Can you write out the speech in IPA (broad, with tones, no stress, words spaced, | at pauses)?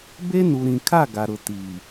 be˦ nu˨ɾĩ˨kʰa˦˨ ɡa˨ɾʊ˨ ti˨